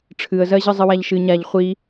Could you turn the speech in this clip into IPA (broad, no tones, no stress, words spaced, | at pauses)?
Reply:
ʈ͡ʂʰɨə̯zɜʑɯzˤɨ waʎʃɨ ɲaʎ χʷi